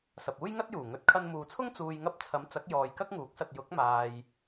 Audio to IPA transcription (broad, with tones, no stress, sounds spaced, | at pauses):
s ɐ˨ p̚ uː˥ j ŋ ɐ˥ t̚ j uː˨˩ ŋ ɵ˨˥ t̚ kʰ ɐ˧ n m uː˨ t͡sʰ ʊ˥ ŋ t͡s uː˨ j ŋ ɐ˧ p̚ t͡sʰ ɐ˨˥ m t͡s ɐ˨˥ k̚ j ɔː˨ j k ɐ˥ k̚ ŋ uː˨˥ k̚ s ɐ˨ t̚ j ʊ˨˥ k̚ m aː˨ j